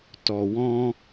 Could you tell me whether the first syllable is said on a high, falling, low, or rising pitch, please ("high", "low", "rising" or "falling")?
low